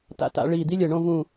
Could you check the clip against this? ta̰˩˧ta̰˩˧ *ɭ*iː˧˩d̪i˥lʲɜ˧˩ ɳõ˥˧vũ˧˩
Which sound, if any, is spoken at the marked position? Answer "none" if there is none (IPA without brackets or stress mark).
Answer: ɭ